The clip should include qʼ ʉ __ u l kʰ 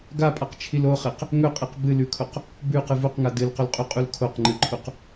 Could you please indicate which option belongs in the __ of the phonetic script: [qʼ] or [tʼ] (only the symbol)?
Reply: qʼ